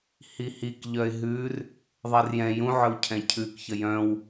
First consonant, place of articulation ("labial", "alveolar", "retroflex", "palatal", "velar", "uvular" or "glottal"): glottal